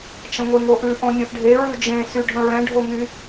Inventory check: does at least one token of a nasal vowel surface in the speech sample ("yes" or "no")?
yes